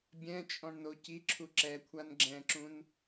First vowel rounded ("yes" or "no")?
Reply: no